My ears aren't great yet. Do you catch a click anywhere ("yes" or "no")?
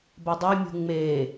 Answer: no